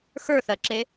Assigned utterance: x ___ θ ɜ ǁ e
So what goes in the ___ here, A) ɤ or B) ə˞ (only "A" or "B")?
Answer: B